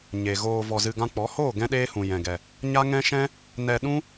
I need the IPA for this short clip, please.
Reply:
ɲ e˨ ɣ oː˧ v ɔ˧ z ɨ˧ ɡ ã˦ k͡p ɔ˨˦ h oː˦˨ ɡ ɛ̃˦ ɗ eː˦ h ũ˨ j ɛ̃˨ ɡ ɛ˨ | ɲ a˦ ŋ ɛ̃˦ ʃ ɛ̃˦ | n ɛ˧ ɗ ũ˦

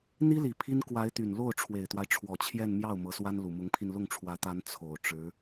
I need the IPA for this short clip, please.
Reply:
n̪ i˥ l i˨˩ pʰ i˥ n k w a˧˥ ɪ̯ t̪ y˨˩ n l o˥˩ ʊ̯ ʈ͡ʂʰ w e˨˩ ɪ̯ t̪ w a˦ ɪ̯ ʈ͡ʂʰ w ɔ˨˩ t͡ɕʰ j ɛ˥˧ n m j ɑ˥˩ ʊ̯ m ɤ˧˥ s w a˥ n l u˨˩ m ʊ˧˥ ŋ pʰ i˧ n l ʊ˥˩ ŋ ʈ͡ʂʰ w ä˧˥ t̪ a˧˥ n t͡sʰ o˨˩ ʊ̯ ʈ͡ʂ ɻ̩˧˥

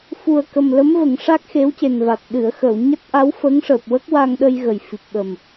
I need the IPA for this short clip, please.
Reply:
f u˨˩ ə̯ k ə˨˩ m l ə˧˥ m v ə˨˩˨ ŋ ʂ a˦˥ k̚ x e˧˥ w c e˨˩ n v a˨˩ t̚ ɗ ɨ˨˩˨ ə̯ x ə˨˩˨ w ɲ a˦˥ t̚ ʔ a˧˥ w f ə˧˥ ŋ ʂ əː˨˩ p̚ w ə˦˥ k̚ w a˧ ŋ ɗ ə˧ j ɣ ə˨˩ j f i˨˩ p̚ ɓ ə˨˩ m

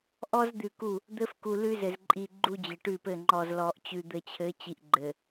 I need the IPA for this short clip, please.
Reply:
ʔ ɔ˦ z d̪ ʉ˨ k u˦˨ | d̪ ɘ˦ f k u˨ l ʉ˦ z ɘ˨ z ǃʼ i˨ ɡ͡ǃ u˦ d͡ʑ ɘ˨ ʈ ʉ˦˨ p ɘ˦˨ ŋ͡ǃ ɔ˨ z l ɔ˨ ʔ t͡ɕ ʉ˨ d̪ ɘ˨ t͡ɕʰ ɘ˨˦ t͡ɕ i˨ ʔ ɡ͡ǃ ɘ˨

